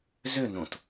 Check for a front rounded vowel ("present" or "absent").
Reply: present